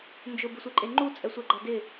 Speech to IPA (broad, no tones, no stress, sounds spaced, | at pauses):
n d͡ʒ ʊ b ɪ sʷ e ǃʼ e ŋ͡ǃ u t͡sʼ ɛ sʷ ɛ ɡ͡ǃ a d ɪ